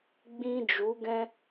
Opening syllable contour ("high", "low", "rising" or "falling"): high